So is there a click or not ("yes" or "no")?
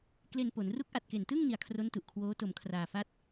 no